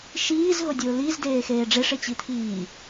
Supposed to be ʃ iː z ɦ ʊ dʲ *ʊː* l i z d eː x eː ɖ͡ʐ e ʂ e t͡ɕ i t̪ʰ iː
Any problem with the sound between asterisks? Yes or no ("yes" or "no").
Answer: no